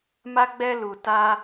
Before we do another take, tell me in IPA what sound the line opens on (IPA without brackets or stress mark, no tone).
m